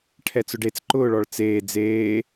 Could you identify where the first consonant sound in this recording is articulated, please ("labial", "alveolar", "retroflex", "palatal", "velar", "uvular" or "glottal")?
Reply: retroflex